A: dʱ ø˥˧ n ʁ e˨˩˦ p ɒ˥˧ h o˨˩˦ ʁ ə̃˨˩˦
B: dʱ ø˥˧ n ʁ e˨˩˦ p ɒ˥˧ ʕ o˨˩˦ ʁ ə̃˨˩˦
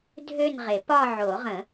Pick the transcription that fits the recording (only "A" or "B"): B